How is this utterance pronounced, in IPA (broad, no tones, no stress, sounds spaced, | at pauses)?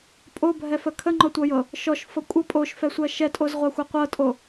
pʼ o bʱ ɛ f ə kʰ ə ŋ͡ǃ ɔ tʷ ɤ j ɤ | ʃ ɔ ʃ f ɤ kʷʼ ɤ pʼ o ʃ f ɛ sʷ ɜ ʃ ɛ tʼ o z ʁʷ a xʷ ɜ qʷ ɤ tʼ o